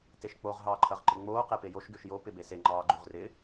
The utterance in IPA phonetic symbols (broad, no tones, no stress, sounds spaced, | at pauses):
t e ʃ k͡p o ʁ ɦ ɑː ǃʰ ɐ ʁ ǃ ɪ ŋ͡m oː q e p e j o ʃ ɡ ʉ ʃ j o p ɪ b e s e ŋ͡ǃ ɑː ɡ͡ǃ ʉ ʁ r ɪ